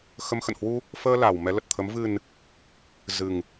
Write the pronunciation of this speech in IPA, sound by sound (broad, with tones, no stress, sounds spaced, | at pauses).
x ə˨˦ m x ə̰˧˨ n h w u˧ | f əː˧ l a˨˩ w m ɛ˨˦ l ə˨˩ t̚ t̪ʰ ə˨˦ m v ɨ˨˩ n | z ɨ˨˩ ŋ